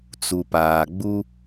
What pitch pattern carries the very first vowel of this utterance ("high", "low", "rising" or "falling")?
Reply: low